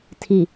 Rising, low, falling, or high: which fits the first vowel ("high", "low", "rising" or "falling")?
low